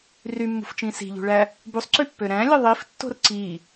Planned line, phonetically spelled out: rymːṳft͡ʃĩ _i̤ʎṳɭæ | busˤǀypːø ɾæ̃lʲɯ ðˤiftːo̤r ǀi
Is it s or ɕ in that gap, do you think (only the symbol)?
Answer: s